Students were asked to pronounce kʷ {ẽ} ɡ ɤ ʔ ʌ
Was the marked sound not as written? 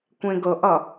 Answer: no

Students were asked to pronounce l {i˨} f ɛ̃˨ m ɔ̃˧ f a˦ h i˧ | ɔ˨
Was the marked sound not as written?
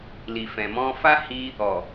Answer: no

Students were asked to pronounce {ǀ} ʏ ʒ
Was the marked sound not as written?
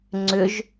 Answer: yes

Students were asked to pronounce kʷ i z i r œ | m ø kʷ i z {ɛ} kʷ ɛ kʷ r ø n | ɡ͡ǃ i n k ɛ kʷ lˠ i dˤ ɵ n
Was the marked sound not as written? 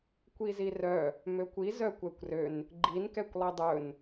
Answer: yes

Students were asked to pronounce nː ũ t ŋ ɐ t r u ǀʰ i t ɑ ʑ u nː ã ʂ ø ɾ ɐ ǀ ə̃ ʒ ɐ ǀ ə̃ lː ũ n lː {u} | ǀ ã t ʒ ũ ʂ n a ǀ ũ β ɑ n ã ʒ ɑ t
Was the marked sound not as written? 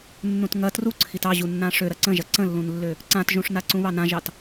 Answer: yes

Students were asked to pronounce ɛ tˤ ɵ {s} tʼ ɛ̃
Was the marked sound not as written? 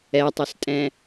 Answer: no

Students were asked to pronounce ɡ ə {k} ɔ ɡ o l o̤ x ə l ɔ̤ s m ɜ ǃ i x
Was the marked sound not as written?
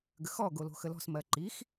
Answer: yes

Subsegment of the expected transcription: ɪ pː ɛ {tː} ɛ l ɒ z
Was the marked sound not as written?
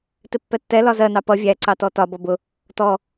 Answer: no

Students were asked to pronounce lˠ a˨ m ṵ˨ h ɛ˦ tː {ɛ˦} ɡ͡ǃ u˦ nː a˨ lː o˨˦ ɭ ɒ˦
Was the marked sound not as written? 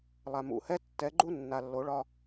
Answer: yes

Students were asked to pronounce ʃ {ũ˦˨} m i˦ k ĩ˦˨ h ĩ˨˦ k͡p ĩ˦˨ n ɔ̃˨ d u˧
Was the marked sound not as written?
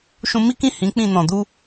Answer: yes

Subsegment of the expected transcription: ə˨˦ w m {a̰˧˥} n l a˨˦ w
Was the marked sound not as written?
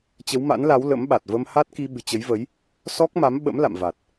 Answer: no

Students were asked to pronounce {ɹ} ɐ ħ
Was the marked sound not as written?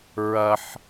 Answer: no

